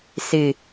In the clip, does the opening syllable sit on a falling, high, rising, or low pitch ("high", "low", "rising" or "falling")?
falling